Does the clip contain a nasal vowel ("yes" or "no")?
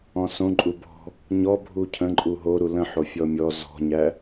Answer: yes